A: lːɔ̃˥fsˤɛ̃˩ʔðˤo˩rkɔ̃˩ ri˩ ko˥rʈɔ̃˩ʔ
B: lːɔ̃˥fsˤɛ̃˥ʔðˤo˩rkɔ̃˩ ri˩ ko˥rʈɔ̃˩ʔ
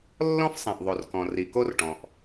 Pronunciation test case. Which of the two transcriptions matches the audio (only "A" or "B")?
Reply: A